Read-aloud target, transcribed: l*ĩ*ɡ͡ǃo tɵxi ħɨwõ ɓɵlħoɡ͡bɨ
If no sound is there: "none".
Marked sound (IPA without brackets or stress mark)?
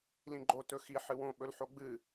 ĩ